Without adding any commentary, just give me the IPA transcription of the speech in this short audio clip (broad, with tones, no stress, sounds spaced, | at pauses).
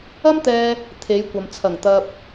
ɐ˥ m t̪ ɛː˧ | t̪ʰ e˨˧ j kʷ ɐ˨ m t͡sʰ ɐ˨˩ ŋ t̪ ɐ˧ p̚